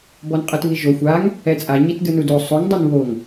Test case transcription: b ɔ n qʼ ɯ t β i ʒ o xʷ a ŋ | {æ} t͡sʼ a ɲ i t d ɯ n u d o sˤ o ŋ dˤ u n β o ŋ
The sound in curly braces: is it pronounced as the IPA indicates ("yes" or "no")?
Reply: no